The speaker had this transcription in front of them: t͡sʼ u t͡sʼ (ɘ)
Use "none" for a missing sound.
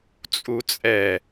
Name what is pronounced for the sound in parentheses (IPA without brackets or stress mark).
ɛ